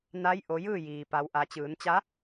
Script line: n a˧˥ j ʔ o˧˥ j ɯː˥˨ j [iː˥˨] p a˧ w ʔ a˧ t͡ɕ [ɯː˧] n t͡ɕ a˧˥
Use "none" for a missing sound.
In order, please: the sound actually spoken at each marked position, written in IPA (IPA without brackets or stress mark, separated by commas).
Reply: iː˩, ɯː˩˧